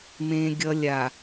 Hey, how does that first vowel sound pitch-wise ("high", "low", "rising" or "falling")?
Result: high